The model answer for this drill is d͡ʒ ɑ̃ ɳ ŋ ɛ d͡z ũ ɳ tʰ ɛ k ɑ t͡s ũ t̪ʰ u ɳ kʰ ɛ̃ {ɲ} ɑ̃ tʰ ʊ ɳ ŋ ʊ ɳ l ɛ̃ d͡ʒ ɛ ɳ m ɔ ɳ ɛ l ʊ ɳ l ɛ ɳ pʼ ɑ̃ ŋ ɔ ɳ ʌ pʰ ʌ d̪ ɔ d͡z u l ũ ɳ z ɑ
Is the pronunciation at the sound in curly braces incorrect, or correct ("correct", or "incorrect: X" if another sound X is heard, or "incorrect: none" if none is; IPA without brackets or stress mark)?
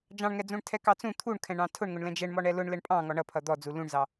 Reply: incorrect: ɳ